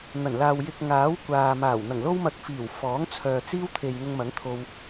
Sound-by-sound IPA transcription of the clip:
n̪ɐ˨˩nlaː˨w jɪ˨k̚ ŋaː˨˥wkʷaː˨maː˨˩w n̪ɐ˨˩ŋlo˥wmɐ˧k̚ fiː˨˩wfɔː˨˥ŋ t͡sʰœː˨ t͡siː˥wt̪ʰe˨j ŋʊ˧ŋmɐ˨˥ŋt̪ʰo˧w

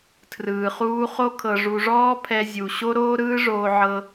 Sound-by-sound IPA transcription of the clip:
tʰrɯː˨χuː˦ χo˦ kʰɤ˧ʐu˧ ʐɔː˦ pʰɛ˧zʲu˨ ɕo˦ɾoː˦ ɾɯː˦ʐoː˧ ʕɤ˧

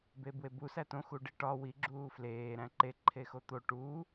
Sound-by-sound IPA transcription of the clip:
bebwebu sætõ xuɖiʈɒ wi ɡ͡ǁuːfleː ɾæ̃ǃe ǃʰexot̪o ʈuː

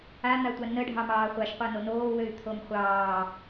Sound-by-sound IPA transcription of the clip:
an̪atʷa nə ɖʱɑmɑːχʷaʃ qʷanonoːwøy̯ t̪ʰomχʷɑː

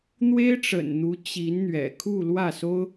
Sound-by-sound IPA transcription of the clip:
n̪we˥ɪ̯ʈ͡ʂə̰˨˩n n̪u˧˥ t͡ɕi˧˥nn̪ɥɛ̰˨˩ kʰu˥˧ lwä˥˩so˥ʊ̯

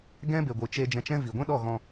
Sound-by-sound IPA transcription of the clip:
ɡɛ̃˦be˨ɡʷɨ˨t͡ʃe˧ d͡ʒɛ̃˨t͡ʃɛ̃˧ vi˨ɡʷɛ̃˦ɗɔ˦˨ɣɔ̃˧

